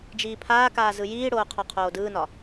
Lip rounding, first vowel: unrounded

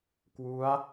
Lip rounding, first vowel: rounded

